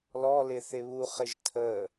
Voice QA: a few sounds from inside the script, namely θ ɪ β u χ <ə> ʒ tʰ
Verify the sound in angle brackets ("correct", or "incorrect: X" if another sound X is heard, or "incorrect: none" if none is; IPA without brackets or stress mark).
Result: incorrect: ɪ